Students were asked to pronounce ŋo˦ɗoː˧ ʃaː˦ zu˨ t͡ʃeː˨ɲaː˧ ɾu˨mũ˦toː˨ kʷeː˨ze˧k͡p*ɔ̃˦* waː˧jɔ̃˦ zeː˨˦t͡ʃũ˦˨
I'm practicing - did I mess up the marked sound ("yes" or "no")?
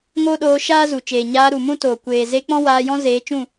no